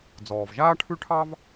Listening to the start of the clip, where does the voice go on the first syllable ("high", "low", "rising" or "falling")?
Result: low